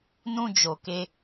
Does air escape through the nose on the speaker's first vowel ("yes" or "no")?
yes